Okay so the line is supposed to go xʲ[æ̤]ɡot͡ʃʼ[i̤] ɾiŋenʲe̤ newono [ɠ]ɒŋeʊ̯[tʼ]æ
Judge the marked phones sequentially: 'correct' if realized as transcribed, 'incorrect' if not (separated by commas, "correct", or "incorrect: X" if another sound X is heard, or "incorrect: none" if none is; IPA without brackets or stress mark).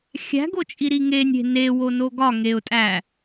correct, incorrect: i, incorrect: ɡ, correct